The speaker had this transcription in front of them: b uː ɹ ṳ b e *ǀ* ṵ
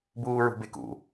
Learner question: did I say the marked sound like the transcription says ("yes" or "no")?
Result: no